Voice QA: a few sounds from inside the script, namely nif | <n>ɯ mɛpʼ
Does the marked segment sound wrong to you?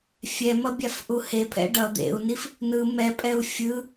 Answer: no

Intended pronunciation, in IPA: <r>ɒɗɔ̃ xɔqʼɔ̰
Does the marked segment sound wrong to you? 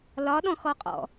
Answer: yes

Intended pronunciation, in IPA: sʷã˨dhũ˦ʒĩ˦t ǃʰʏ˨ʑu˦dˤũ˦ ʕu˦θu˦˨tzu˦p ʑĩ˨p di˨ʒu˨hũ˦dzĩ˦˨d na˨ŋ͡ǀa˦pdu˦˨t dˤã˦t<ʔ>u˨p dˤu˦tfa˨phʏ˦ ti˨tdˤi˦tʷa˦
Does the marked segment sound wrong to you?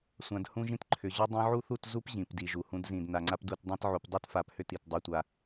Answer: yes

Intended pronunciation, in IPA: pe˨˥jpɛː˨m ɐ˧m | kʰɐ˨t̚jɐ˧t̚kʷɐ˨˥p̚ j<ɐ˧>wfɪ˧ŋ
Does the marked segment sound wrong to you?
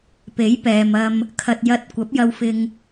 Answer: no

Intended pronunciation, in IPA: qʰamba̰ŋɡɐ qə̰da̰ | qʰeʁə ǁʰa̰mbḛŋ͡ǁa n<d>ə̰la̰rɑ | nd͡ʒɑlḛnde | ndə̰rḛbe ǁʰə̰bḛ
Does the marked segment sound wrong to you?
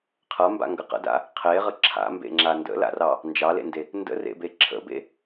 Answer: no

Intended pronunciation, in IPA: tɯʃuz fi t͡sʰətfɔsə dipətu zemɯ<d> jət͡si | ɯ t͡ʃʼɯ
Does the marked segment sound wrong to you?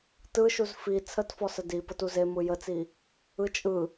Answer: yes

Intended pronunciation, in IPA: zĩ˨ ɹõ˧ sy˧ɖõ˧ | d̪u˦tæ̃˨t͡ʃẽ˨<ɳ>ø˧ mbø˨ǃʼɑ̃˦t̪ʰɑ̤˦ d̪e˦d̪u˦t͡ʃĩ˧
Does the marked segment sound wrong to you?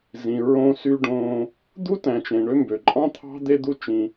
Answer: no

